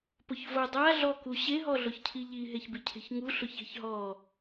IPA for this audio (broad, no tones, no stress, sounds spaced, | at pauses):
p ʊ ç v o dˤ a ɮ ɔ k u ɕ e ɦ ɔ ɮ ʊ ç cʰ i ʎ i ɦ e ç b i cʰ e̤ ç ŋ u ɬ ʊ ç e̤ ç ɦ ɔ